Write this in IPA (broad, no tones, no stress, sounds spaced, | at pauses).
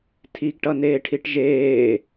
tʰ i ɡ ʈ ʌ n eː ʈʰ i ʈ ʒ eː